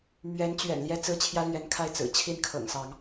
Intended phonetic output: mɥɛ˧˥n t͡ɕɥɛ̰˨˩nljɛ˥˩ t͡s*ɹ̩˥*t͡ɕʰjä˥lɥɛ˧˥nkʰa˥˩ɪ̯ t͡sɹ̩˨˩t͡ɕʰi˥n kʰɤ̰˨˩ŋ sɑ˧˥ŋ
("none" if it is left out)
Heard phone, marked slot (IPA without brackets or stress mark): ɹ̩˥